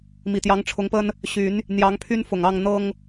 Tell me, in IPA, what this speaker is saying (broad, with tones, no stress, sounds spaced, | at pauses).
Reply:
m i˨˩ t̪ j ɑ˨˦ ŋ ʈ͡ʂʰ ʊ˨˦ ŋ p ə˦ n | ɕ y˨˦ n | n̪ j ɑ˨˦ ŋ pʰ y˦ n f ʊ˨˩ ŋ ɑ˥˨ ŋ n̪ ɤ˦ ŋ